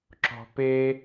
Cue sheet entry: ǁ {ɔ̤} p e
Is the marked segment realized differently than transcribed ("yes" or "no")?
no